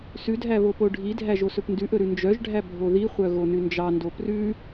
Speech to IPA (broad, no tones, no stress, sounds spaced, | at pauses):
s ʉ dʱ æ β o p o ɖʱ i dʱ æ ʒ o s ɵ p n d ʉ ʔ ɵ ɾ ʉ n d͡ʒ œ ʒ ɖʱ æ bʱ o ð i χʷ œ ɣ o n ʉ n d͡ʒ ɑ n d o p r ʉ